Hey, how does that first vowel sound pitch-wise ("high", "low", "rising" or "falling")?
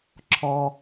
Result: low